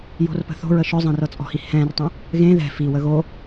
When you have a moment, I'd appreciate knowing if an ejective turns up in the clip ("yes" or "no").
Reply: yes